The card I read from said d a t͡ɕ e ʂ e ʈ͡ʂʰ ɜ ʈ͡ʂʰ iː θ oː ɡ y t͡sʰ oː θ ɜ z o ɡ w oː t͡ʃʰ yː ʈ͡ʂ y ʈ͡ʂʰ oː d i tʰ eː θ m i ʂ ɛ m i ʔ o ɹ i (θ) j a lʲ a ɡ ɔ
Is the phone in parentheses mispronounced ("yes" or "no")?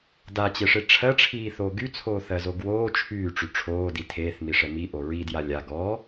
yes